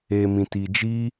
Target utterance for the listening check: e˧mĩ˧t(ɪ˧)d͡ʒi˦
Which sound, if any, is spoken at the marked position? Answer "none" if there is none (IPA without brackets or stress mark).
i˧